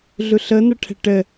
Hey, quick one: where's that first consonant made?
tongue tip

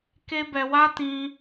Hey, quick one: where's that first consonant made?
velum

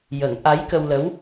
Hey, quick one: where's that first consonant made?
palate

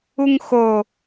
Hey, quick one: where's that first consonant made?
velum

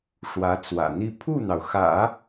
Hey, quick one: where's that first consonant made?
retroflex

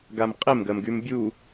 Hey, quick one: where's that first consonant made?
velum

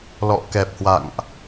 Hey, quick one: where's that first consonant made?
tongue tip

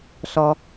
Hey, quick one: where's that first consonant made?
tongue tip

